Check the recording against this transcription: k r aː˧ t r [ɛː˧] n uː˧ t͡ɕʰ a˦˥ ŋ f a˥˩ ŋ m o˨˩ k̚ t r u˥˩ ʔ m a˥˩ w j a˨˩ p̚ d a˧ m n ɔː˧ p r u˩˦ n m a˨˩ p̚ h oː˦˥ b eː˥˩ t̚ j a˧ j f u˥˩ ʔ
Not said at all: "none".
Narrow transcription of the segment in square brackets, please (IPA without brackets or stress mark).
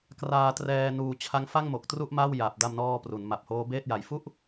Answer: ɛː˧